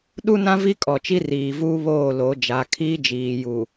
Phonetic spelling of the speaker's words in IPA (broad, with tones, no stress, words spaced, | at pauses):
ɗu˦nã˦ vi˦kʼɔ˨ t͡ʃi˦riː˨ vuː˦βoː˦˨ lo˨˦d͡ʒa˨˦ kʰiː˦d͡ʒiː˨ju˨